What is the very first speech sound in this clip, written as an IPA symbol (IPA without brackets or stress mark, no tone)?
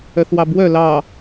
œ